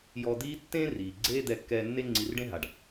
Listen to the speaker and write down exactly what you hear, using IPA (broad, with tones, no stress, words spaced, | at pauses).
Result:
jɔ˧d̪iː˥ tːẽ˥riː˩ ɡ͡ǀeː˥d̪ɛ˧kːɛː˧nːe˥ ŋ͡ǀi˧r ɖẽ˥ɦa˩ɖ